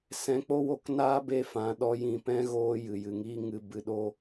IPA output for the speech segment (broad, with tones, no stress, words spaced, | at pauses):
sɛ̃˨˦k͡po˦wo˧k naː˦be˧ fã˨ɗɔ˧ jĩ˨pɛ̃˦ɣoː˧ jɨ˨jɨ˨ŋi˦ŋɨ˧ bɨ˧ɗo˦